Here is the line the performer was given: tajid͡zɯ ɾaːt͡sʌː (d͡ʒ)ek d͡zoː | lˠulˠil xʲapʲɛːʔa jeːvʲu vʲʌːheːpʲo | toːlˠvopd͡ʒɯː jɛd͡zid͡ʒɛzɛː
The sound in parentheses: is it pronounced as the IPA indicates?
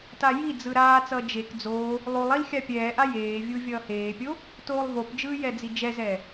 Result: yes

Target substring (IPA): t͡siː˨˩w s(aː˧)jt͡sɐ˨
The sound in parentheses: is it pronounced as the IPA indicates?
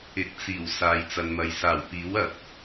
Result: no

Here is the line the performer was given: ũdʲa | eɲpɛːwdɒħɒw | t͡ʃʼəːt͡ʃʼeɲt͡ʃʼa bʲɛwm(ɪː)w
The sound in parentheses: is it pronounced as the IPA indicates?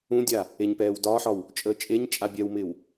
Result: yes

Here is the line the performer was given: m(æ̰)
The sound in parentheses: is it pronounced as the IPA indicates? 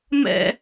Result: no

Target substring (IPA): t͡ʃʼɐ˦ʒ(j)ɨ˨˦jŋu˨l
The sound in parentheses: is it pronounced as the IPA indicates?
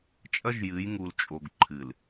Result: yes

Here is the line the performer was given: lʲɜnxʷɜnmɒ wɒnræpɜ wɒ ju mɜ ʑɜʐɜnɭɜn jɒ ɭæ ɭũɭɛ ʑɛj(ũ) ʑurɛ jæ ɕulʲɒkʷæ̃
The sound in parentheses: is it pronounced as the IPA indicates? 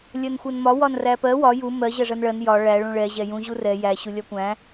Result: yes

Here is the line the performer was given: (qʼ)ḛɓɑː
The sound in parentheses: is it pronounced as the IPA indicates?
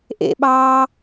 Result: no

